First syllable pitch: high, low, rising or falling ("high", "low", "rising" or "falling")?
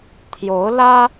rising